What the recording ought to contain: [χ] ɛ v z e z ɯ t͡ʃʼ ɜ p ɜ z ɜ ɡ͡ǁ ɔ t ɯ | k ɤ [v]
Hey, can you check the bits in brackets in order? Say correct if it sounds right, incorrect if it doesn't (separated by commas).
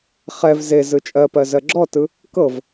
correct, correct